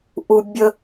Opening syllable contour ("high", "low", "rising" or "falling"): high